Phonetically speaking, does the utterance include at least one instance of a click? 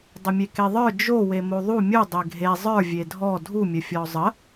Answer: no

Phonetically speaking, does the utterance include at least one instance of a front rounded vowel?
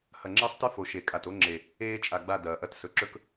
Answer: no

